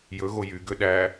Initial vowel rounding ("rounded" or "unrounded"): rounded